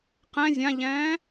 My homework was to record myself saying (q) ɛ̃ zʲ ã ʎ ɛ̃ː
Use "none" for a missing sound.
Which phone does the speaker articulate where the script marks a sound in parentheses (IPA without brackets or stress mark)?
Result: q